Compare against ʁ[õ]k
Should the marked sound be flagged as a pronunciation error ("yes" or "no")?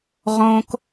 no